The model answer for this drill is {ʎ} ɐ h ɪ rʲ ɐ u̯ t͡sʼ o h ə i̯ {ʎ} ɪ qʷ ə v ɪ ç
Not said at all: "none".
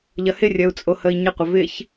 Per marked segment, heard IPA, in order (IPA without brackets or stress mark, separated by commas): ʎ, ɲ